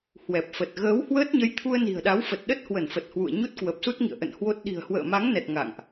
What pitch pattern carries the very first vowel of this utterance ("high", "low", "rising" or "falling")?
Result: low